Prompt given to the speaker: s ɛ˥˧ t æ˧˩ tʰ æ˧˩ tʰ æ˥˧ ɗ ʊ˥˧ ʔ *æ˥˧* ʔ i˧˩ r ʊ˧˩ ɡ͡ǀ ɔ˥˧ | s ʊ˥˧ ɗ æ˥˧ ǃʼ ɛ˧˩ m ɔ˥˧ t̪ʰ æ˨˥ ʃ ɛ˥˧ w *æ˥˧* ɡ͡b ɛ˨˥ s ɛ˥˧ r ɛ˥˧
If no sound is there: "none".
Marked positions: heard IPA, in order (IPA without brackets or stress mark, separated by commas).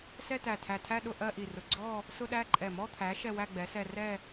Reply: ɜ˥˧, æ˥˧